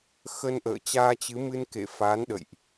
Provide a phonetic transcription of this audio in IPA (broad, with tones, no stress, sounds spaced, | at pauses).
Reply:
x ə˧ n ʔ ə̰ː˧˨ t͡ɕ aː˧ t͡ɕ ɨ˨˦ m ɨ˧ n k ḛ˧˨ f a˨˦ n ɗ ə̰˧˨ j ʔ